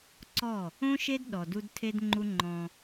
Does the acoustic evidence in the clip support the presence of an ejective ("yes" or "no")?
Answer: no